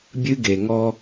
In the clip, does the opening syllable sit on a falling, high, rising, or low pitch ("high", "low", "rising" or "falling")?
high